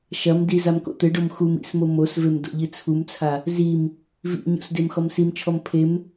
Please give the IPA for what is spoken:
ʃ ɐ m d i z a m k o̰ t̪ ɘ ɖ o m x u m ḭ s m o m o s v e m d o̰ ʎ ɨ t͡sʰ u m t͡sʰ a | z i m | v ḭ ɲ o̰ s d e m x ɔ m s i m t͡ʃʰ ɔ m pʰ e m

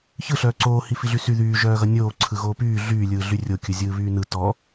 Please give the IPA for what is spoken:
ç ɯ ɬ œː ǀ oː h i f i ɮ y s y ð yː ʒ œː ɣ ʌ nʲ oː ǀʰ ɯ ɣ oː p yː ɮ yː lʲ ɯː ɮ y rʲ o kʲ ɯ zʲ ɯː β yː n ɯ t ɔ

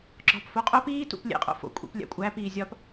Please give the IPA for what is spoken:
ɡ͡ǁ ɒ p f o qʼ o p iː t ṵ p lʲ ḛ qʼ o̰ f o̰ kʷʼ ḭ p lʲ æ̰ kʷʼ æ p iː zʲ ɒ p

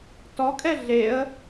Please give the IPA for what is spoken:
t ɔ kʼ ɛ ɮ e ə̯

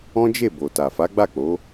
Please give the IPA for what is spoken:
ɔ̃˦ d͡ʒ e˦˨ b o˨ t a˨ f a˨˦ ɡ͡b a˦˨ k͡p o˨˦

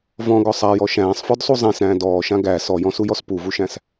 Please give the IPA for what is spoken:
v ɔ̃ ɡ ɔ sˤ a j ɔ ʃ æ̃ː sˤ f ɔ d sˤ u zˤ æ̃ s ɾ æ̃ː d ɔː ʃ ã ɡ æ s ɔ j ɔ̃ s u j ɔ s p u v u ʃ æ̃ s

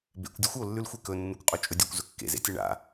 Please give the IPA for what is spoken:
b ḛ kʷ dʲ ʉ xʷ o lː ʉ l xʷ e k ɵ nː u kʷ qʼ o t͡ʃʼ ɵ dʲ u kʷ z ɵ kː ḛ z ḛ tʲ e ɳ a̰

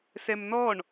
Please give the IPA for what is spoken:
s ɛ m n ɔ ɳ

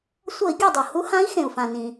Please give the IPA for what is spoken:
sʷ ʌ˧˩˧ i̯ ɡʲ ʌ˧˩ dˤ o˩ h u˨˥ h ã˨˥ i̯ x ẽ˩ u̯ f ã˩ n ĩ˩

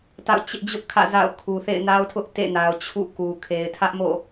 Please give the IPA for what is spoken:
t a̰˦˨ ʊ̯ t͡ɕ ɪ˦ ʔ d͡ʑ ʊ˦ ʔ kʰ ä̰˦˨ z a̰˦˨ ʊ̯ kʰ u˨ θ ḛ˦˨ ɪ̯ n a˦ ʊ̯ tʰ ʊ˦ ʔ t ḛ˦˨ n a˨ ʊ̯ t͡ɕʰ ṵ˦˨ k u˨ kʰ e˨ ɪ̯ tʰ ä˦ ʔ m o̰˦˨

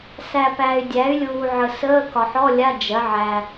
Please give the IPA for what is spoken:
s æ˨ p æ˨ y̯ dʲ æ˩˥ y̯ lʲ uː˨ ʕ ə˨ s əː˧˥˧ k ɒ˨ ħ ɔ˧˥˧ lʲ a˧˥˧ d͡ʒ ɜ˩˥ ʕ æ˨

